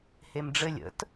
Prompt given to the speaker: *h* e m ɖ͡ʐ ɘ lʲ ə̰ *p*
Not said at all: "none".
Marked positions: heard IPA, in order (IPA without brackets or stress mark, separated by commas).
h, t